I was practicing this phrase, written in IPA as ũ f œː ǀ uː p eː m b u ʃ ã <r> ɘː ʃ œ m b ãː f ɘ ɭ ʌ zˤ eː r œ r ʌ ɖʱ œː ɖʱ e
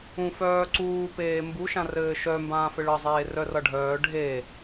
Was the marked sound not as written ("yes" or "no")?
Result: no